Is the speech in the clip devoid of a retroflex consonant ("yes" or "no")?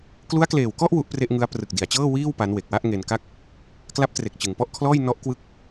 yes